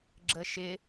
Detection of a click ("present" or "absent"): present